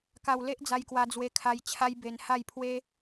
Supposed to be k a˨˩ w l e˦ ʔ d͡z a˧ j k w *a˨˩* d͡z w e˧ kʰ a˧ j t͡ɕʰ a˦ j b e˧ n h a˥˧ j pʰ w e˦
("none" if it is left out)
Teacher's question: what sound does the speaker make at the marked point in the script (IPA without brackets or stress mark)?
a˧